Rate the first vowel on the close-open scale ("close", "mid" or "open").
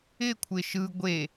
close